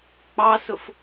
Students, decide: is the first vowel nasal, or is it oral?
oral